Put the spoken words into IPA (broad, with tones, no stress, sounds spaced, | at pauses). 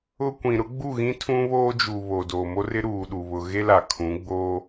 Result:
ʊ˦ kʷ ĩ˨ ɾ ʊ˦ ɡ͡b u˦˨ ɣ ĩ˦ tʰ ũ˦ β oː˦ d͡ʒ u˨ β o˨ d oː˨ m o˦ r ɪ˦ ɾ uː˨ ɗ u˨ β ʊ˨ ɣ e˦ l a˨ kʰ ũ˨˦ ɡ͡b oː˦